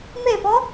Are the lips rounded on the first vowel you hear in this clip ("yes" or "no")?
no